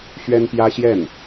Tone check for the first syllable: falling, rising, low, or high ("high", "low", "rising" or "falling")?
high